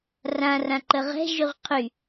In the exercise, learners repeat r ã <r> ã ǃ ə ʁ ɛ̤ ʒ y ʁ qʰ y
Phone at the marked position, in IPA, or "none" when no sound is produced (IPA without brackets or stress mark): r